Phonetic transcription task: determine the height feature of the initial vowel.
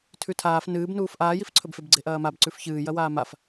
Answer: high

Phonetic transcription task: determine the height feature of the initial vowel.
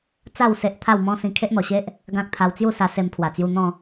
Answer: low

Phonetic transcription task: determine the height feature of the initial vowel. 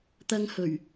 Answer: low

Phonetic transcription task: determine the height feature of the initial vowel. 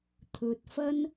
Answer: mid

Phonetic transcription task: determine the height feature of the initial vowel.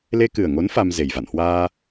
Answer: mid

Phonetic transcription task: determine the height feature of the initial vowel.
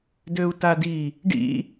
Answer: mid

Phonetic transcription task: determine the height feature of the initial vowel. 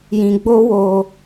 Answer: high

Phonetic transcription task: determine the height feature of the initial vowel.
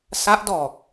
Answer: low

